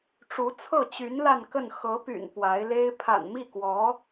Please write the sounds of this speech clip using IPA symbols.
ʈ͡ʂ u˧˥ t͡sʰ ɤ˥˩ t͡ɕ y˧˥ n l a˥˧ n k ə˥˩ n x ɤ˧˥ p y̰˨˩ n p w a˧˥ ɪ̯ l e˥ ɪ̯ pʰ a̰˨˩ n m i˥˩ k w ɔ˧˥

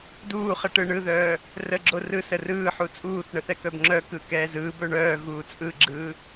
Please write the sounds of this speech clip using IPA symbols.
d uː χ ə ʈ ɯ ɳ ɯ ð œː | r ə ɡ͡ǁ o r ɯ s ə r ɯː ħ u t͡sʼ uː θ ɳ ə θ ɛ k œ b ŋ͡ǁ œ k ɯ k ɛː z ɯː b œ ɳ œː ɣ uː t͡sʼ ɯ ɡ͡ǁ ɯː

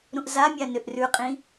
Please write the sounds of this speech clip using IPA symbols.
ɾ ũ ʔ z a mʲ a n ʏ ʔ r ʉ qʼ ĩ

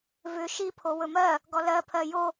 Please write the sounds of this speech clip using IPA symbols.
v ʏ ʃ i pʰ o w ɵ m ɜ | ɡ ɔ l ɜ pʰ ɜ j o

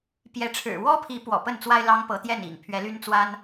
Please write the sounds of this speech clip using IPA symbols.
p j ɛ˨˦ ʈ͡ʂʰ ɻ̩˨˩ w ɔ˦ pʰ i˨˦ p w ɔ̰˨˩ p ə˥˨ n t͡s w a˦ ɪ̯ l ɑ˦ ŋ p ɤ˨˦ t̪ j ɛ˥˨ n ḭ˨˩ ŋ pʰ ɥ ɛ˨˦ l y˦ n t͡s w a˦ n

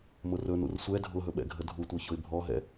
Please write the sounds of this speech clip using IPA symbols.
m ʊ r ɵ n ṵ r sʷ ɛ dʱ ʊ ɦ ɵ ɓ ɛ̰ ɡʱ ə dʱ u tʷ œ ç ʊ ɪ̯ bʱ ɔ ɦ ɛ̰

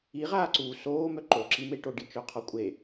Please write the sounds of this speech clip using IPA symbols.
i ʁ aː ǀ uː s oː m œ ǃ o ǁ i m e ʈ o ɖ i t͡ʃ œ qʰ ɔ kʷʼ e

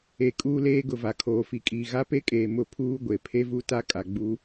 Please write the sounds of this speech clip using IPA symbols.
e˨ kʼ uː˦ l eː˦ ɡ ʊ˨ v a˨ kʰ oː˨ f i˨ kʼ iː˨ ɣ a˦ p e˦ kʼ eː˨ m ʊ˦ pʰ uː˦ ɡʷ e˨ pʰ e˦ v u˦ t a˦ kʼ a˨ ɡ͡b u˦

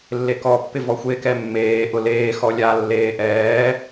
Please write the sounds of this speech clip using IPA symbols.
lː e k ɔ pː ɪ v ɔ xʷ e k ɛ mː eː ʔ ʊ l eː x ɔ lʲ a lː eː ʔ ɛː

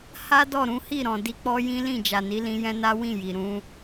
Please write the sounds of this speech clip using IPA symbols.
h a˦ d ɔ˦˨ ɾ ũ˨˦ h i˦˨ ɾ ɔ̃˨ d i˧ k͡p ɔ˦ j ĩ˦ l ĩ˦˨ d͡ʒ a˨ n i˨˦ l ĩ˧ j ɛ̃˦ n a˦ w ĩ˦˨ j i˨ ɾ ũ˧

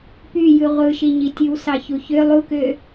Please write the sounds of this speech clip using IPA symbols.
p y j ɯ ʁʷ ɯ ʃ i ɲ i tʲ ɯ w s ɑ ç u ç ø lˠ u k ø

